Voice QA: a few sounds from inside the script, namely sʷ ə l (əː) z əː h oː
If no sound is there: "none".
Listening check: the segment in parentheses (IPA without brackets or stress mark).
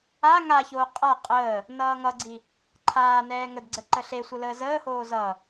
əː